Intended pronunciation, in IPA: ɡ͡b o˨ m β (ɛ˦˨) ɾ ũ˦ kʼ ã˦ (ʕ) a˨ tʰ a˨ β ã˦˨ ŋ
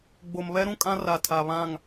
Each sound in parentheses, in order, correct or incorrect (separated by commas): incorrect, incorrect